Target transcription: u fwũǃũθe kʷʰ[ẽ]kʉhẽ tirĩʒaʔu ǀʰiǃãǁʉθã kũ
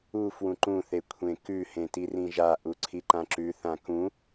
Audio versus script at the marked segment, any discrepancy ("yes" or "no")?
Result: no